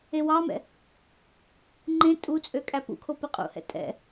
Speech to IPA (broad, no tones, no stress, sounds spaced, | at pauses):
e w ɑ m ɛ̰ | ŋ͡ǃ ẽ tʼ u t͡sʼ ø kʼ æ p ṵ kʰ o p i qʼ ṵ h ɛ̰ tʼ ɛ̰